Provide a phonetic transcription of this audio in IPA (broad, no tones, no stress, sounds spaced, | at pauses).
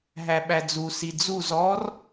ɦ æ ɓ æ d͡z u s i d͡z u z ɔ r